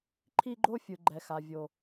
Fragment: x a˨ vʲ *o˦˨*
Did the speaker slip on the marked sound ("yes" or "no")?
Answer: yes